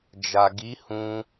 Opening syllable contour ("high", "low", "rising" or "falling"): low